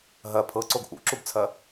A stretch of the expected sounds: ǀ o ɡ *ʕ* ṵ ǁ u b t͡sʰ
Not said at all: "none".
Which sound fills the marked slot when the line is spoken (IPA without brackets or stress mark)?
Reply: ʔ